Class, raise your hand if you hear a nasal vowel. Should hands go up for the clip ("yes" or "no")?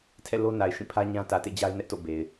yes